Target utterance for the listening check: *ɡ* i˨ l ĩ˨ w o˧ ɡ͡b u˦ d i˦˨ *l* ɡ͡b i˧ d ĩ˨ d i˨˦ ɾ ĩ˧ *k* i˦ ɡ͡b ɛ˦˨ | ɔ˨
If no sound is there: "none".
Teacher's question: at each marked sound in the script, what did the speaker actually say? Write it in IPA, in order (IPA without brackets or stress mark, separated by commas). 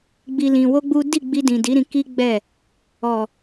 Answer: ɡ͡b, none, k